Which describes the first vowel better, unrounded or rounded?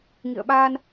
unrounded